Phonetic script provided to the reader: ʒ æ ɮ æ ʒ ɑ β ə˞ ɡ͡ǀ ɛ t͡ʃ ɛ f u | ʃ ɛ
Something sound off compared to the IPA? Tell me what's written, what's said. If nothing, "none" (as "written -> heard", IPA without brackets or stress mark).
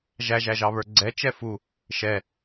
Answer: ɮ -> ʒ